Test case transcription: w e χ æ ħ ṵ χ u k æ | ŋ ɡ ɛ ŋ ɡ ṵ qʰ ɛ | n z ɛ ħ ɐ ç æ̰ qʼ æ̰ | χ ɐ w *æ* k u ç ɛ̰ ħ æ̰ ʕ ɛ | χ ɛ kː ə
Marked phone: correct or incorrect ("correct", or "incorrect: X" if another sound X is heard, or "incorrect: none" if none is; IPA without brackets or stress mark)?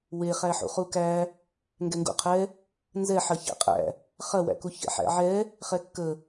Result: incorrect: æ̰